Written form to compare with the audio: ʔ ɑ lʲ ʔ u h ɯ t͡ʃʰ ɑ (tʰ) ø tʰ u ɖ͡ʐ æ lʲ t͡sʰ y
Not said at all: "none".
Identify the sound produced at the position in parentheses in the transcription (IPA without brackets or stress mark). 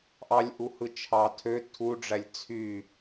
tʰ